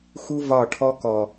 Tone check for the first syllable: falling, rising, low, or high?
high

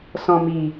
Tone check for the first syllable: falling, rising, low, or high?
low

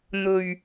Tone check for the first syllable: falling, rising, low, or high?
low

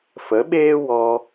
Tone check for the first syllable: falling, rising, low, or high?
rising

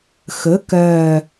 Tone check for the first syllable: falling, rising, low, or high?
rising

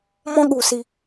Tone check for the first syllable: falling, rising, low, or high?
high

